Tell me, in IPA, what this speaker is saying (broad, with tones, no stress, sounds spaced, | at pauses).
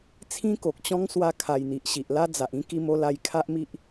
t͡sʰ ĩ˦ k o˨ k̚ t͡ɕ ɔ̃˦ ŋ s w a˧ kʰ a˨˩ j n̪ i˨ ʔ ɕ i˨ ʔ l a˦ d͡z a˨ ʔ ĩ˦ k i˧ m o˧ l a˧ j kʰ a˦ ʔ m i˦ ʔ